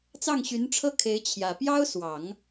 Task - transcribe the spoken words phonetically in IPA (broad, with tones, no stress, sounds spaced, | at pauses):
t͡s ɑ˥˩ ŋ ɕ y˧˥ n ʈ͡ʂʰ ɤ˥˩ kʰ e˧˥ ɪ̯ t͡ɕʰ j ä˨˩ p j ɑ˥ ʊ̯ s w ɑ˨˩˦ ŋ